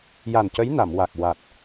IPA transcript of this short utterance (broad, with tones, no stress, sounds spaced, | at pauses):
j a˨˩ n c ə˧˥ j n a˨˩˨ m w a˨˩ k̚ w a˨˩ t̚